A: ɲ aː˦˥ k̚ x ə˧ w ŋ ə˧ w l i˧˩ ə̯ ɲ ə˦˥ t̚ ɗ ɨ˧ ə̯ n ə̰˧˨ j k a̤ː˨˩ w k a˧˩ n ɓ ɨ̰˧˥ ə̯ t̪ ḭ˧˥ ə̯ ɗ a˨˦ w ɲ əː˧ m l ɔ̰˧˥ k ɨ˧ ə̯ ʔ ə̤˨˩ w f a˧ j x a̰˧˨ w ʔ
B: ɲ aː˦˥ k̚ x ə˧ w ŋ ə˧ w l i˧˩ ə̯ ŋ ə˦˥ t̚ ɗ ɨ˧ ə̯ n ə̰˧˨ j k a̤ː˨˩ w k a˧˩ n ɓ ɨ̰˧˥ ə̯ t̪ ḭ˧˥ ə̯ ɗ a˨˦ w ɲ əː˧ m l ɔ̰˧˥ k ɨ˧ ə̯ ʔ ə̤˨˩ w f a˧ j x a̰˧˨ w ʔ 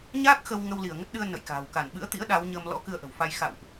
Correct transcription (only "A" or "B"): B